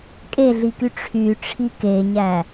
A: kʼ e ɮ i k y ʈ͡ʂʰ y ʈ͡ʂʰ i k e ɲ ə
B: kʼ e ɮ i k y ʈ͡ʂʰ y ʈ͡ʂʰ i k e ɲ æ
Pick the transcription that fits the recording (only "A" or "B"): B